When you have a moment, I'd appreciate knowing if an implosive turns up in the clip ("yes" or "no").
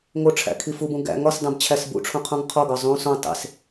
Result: no